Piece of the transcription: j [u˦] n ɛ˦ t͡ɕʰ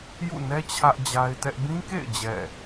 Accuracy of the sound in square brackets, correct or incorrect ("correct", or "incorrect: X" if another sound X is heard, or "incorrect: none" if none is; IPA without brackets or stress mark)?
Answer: incorrect: ṵ˦˨